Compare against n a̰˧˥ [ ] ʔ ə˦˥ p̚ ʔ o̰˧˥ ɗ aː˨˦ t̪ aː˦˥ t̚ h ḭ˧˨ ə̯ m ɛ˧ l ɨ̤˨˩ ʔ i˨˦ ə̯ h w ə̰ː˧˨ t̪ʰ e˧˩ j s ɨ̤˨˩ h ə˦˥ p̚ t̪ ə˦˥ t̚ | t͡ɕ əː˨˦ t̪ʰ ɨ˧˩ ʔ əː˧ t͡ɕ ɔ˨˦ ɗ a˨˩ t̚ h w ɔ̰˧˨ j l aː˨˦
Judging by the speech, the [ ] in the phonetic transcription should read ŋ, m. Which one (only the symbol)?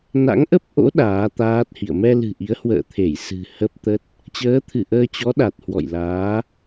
ŋ